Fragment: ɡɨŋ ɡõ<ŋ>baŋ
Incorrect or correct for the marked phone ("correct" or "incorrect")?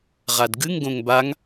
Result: correct